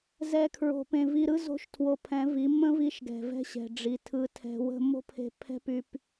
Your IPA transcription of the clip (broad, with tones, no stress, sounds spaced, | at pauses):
z ɛ˦ kʰ ɹ o̤˧ p ẽ˧ v i˧ ɾ ɯ˦ z o̤˦ ʃ tʰ w o˧ pʰ ɛ̃˨˦ v i˨˦ m ə̃˦ v i˧ ʃ ɡ ɛ̤˨ v ɛ̤˧ ɕ ɛ̤˨ ɖ͡ʐ i˨ tʰ ɯ˧ tʰ ɛ̤˧ w ə̤˦ m o̤˦ pʰ e̤˧ pʰ ɛ̤˦ p y˧ p